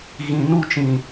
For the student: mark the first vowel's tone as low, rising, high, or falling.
low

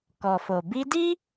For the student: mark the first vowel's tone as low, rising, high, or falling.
low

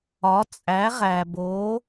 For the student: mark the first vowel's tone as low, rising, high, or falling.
rising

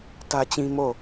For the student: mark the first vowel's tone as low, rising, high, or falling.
high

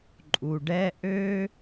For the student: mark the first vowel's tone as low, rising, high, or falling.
low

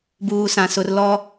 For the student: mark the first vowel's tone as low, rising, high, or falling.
low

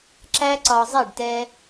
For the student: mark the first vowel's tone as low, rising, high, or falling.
high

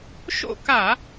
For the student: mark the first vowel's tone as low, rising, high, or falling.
falling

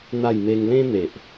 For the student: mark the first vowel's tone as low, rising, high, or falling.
falling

